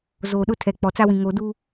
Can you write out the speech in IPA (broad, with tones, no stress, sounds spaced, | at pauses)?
z o˨ ɗ ʊ˦ tʰ ɛ˨ k͡p ɔ˨ t͡s a˦ w ĩ˨ ŋ o˨ d u˦